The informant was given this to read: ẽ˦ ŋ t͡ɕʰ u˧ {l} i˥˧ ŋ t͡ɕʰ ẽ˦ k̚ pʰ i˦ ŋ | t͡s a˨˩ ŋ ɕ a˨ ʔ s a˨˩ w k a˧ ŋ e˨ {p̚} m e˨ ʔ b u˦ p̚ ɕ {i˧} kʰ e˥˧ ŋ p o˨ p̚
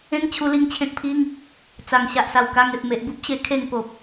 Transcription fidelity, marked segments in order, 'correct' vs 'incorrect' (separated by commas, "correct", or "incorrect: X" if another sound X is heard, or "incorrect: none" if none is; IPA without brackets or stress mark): correct, correct, incorrect: e˧